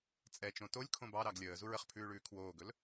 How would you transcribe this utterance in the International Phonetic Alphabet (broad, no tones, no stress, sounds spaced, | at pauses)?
t͡sʼ ɛ t͡ʃ õ t o lʲ kʰ õ b ɑ ɾ ɑ ɡ lʲ əː z u ɹ ə χ pʰ ʉː ɭ ʉː kʰ w oː ɡ ɵ l